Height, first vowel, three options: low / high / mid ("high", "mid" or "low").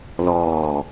mid